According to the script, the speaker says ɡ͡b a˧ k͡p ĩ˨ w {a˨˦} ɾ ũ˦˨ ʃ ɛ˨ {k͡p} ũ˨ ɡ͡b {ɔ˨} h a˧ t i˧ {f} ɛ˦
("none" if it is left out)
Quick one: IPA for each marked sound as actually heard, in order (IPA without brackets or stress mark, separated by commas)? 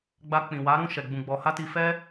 a˨˦, ɡ͡b, ɔ˨, f